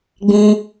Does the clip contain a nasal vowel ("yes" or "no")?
yes